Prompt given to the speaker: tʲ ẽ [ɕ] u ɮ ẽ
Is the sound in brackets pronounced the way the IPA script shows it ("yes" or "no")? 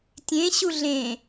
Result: yes